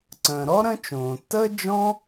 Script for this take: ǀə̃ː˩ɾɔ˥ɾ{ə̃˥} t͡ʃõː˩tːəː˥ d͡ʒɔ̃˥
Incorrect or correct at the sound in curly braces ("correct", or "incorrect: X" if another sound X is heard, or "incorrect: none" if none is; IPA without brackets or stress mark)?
correct